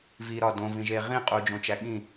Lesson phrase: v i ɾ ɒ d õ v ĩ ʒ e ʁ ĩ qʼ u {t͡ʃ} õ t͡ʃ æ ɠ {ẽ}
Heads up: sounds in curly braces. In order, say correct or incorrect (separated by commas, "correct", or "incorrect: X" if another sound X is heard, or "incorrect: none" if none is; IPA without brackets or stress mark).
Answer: incorrect: d͡ʒ, incorrect: ĩ